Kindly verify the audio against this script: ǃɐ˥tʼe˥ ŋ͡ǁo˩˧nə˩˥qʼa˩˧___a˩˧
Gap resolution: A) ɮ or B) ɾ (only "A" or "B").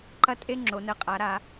B